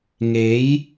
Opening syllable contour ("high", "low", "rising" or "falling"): rising